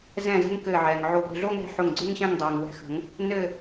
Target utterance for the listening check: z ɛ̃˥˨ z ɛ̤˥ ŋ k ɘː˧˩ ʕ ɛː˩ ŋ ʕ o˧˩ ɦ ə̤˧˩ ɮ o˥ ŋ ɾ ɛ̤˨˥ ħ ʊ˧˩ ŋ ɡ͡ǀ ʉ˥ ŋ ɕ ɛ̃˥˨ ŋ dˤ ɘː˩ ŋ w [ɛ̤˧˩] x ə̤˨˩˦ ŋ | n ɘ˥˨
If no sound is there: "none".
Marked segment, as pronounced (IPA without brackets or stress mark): ɛ̤˧˩